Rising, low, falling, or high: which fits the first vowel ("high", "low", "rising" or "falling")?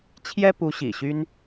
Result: high